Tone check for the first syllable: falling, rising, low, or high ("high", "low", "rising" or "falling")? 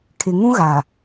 low